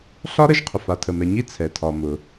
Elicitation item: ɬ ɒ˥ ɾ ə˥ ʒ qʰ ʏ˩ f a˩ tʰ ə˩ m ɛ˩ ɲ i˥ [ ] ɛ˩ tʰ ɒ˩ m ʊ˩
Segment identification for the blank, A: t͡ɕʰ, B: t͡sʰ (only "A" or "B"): B